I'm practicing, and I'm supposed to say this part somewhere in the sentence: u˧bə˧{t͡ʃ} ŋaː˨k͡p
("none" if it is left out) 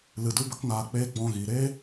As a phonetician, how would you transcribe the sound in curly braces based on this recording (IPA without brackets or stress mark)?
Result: k